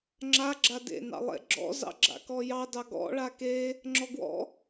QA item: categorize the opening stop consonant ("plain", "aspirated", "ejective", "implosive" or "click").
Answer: click